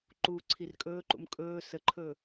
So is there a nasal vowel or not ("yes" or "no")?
no